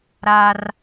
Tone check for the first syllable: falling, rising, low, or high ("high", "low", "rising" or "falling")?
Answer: high